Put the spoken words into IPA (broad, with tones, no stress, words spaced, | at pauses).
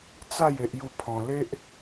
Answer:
t͡sa˥˧j e˦ʔju˥˧ pʰɔ̃˧ le˦ʔ